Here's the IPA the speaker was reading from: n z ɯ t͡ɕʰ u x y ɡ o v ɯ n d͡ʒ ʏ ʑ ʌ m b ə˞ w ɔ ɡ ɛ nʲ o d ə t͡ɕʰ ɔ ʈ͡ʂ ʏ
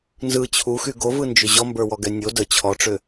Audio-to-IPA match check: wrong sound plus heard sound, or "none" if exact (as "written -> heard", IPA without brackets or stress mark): ʌ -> ɔ